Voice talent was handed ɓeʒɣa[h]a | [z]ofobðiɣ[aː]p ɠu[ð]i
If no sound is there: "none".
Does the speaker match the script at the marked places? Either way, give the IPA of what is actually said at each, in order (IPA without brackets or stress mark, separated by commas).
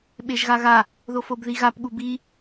ɣ, ð, a, b